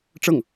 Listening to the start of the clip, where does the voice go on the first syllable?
falling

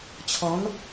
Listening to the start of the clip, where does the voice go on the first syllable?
rising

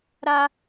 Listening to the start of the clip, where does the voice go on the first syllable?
high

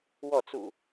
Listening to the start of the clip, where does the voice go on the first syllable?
falling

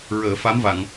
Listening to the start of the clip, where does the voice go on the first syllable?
low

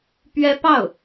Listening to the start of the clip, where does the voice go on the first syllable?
high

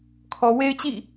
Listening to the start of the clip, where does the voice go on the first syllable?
low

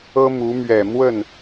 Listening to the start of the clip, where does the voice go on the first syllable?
high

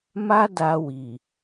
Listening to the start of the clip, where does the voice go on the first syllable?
high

